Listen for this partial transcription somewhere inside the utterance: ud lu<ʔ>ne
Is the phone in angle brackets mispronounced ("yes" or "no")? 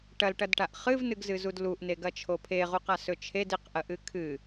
no